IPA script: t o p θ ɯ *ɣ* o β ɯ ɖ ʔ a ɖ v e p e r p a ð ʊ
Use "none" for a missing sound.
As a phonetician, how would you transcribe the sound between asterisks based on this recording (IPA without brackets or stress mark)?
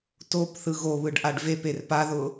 ɣ